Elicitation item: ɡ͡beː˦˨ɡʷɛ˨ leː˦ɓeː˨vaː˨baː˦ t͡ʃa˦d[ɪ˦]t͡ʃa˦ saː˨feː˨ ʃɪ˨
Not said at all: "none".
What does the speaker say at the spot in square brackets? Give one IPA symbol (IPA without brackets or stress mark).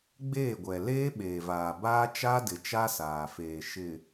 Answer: ɪ˨